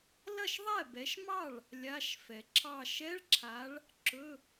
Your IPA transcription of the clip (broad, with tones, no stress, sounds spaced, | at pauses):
l ɐ˥˩ ʃ ðˤ ɛ˥˩ b ɛ˨˦ ʃ m ɑ˥˩ ɭ | lʲ a˧˥˧ ʃ f ɛ˨ ǁʰ ɑ˥˧ ʃ ɛ˧˥˧ ɭ ǁʰ a˨˦ ɭ | ǁ ɵ˧˥˧